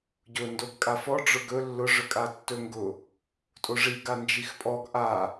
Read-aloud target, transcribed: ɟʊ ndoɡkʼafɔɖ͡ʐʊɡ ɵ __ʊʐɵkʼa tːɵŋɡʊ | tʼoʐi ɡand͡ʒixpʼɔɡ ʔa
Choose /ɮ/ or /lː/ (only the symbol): lː